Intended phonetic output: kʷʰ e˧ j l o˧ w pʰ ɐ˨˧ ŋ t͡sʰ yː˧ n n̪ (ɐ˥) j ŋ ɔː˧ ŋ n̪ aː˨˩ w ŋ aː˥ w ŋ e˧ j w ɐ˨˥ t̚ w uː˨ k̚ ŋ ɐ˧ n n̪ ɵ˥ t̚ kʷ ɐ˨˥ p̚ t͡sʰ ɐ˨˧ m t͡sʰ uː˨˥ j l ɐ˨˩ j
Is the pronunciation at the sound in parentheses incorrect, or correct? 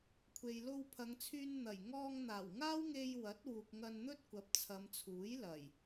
incorrect